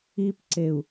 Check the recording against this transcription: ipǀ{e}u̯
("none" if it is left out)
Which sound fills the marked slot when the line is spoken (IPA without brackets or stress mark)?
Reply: e